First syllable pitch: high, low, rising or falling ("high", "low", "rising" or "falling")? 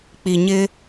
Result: low